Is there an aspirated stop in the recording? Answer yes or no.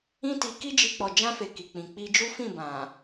no